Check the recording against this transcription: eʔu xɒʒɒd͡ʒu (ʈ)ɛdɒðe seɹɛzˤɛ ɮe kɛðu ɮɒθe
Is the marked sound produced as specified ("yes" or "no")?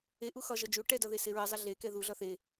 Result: yes